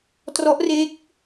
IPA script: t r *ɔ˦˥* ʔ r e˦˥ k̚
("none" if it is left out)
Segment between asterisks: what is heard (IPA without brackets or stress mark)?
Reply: ɔ˦˥